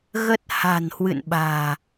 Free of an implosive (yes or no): no